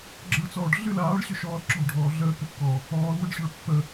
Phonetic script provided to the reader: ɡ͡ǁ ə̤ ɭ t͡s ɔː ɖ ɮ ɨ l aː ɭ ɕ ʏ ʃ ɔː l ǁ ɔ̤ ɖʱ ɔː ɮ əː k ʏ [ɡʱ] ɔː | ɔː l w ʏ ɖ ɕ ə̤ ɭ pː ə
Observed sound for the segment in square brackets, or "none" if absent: kː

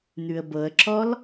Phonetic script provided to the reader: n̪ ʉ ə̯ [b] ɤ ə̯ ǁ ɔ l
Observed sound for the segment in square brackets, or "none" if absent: b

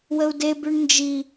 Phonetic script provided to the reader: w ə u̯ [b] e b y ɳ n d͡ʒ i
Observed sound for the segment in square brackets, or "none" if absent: d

